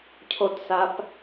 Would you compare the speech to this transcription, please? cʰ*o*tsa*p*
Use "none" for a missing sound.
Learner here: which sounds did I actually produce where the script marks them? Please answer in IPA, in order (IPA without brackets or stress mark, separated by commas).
o, p